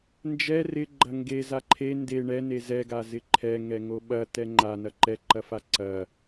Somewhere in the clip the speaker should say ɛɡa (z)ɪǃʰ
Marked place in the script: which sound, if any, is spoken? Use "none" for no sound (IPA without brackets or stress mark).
z